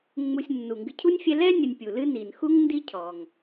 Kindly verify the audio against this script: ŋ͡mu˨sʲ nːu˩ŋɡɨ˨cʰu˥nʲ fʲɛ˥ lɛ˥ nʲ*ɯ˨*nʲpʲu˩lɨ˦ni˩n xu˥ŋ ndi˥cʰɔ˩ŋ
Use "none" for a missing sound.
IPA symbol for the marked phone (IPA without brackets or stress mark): ə˨